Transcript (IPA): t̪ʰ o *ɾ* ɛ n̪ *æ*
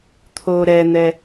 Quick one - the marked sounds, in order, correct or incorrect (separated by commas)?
correct, incorrect